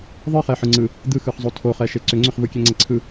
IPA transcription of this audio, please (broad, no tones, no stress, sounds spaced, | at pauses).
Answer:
ðˤ ɯ χ ɛ ħ ɯ ŋ͡ǀ ɯ | d̪ ɯ x ɯ χ zˤ o tʰ o χ ɛ ʃ e ǀ ʏ ŋ͡ǀ ʏ χ v ɯ kʲ ɛ ŋ͡ǀ ɛ ǀʰ ɯ